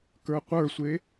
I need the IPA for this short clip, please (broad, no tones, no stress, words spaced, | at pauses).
kə˞qʷə˞sʷe